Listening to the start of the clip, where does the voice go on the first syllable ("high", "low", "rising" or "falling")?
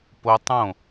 high